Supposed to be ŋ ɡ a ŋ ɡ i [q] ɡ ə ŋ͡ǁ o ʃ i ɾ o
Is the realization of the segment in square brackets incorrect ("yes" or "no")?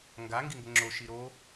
yes